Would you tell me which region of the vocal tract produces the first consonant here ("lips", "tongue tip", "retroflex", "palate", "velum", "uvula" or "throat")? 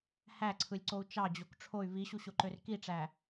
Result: throat